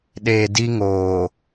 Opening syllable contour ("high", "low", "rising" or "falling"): low